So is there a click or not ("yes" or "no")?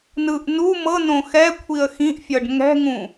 no